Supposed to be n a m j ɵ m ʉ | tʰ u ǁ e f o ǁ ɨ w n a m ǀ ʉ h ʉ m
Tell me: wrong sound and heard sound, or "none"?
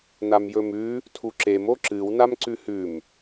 f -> m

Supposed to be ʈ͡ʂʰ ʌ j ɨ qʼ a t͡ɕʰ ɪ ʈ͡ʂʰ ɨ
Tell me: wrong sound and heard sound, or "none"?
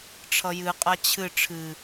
ɪ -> ɨ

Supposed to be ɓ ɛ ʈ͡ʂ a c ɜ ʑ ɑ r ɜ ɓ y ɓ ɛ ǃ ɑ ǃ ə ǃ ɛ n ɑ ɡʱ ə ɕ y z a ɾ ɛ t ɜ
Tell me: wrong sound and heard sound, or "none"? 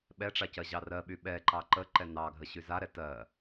none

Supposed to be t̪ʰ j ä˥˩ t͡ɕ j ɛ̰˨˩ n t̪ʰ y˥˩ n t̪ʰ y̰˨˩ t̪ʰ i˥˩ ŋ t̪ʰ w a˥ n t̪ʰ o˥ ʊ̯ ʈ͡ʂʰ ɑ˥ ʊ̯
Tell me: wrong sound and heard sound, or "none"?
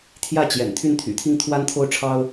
none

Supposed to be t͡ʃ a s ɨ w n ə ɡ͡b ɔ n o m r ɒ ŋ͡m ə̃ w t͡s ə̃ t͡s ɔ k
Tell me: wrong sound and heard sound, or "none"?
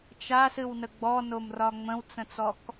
none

